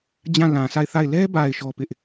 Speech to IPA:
d͡ʑ ã˦˨ l ã˨ s a˦˨ ɪ̯ θ a˦˨ ɪ̯ l ɛ˦ b a˨ ɪ̯ ʃ ɔ˦ p ɪ˦ ʔ

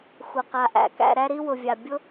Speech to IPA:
xʷ ə˩ q a˩ ʔ æ̰˩ k æ̰˨ ɾ æ˦ ɾ i˦ w ʊ˩ vʲ a˩ bʲ ʊ˥

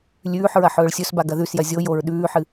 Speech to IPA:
lʲ ʉː ħ ɹ ɐ ħ ɵː ɭ sʲ ɵ s b a ɡ ɐ ð ʉ s j ɐ zʲ o j o ɹ ɗ ʉː ħ ɨ

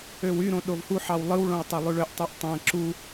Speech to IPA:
ø w y ɾ õ ɗ o v h u ħ ɑ w lˠ ɯ w ɭ õ w tˤ æ lˠ y ɭ ø ʔ tˤ u ʔ tˤ æ̃ ǁ u

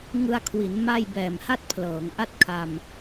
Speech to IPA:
ŋ ɯ˧ a̯ kʰ w i˩˦ n m a˥˩ j b ɛː˨˩ m h a˥˩ t̚ pʰ l ɤː˩˦ ŋ ʔ a˥˩ t̚ kʰ a˧ m

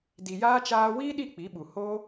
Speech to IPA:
d i˨ j aː˦ t͡ʃ aː˧ w iː˦ ɗ i˦˨ k͡p i˨˦ ɓ u˨ h oː˦

